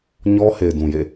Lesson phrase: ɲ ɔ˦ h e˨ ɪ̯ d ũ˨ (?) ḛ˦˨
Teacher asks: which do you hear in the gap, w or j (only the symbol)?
j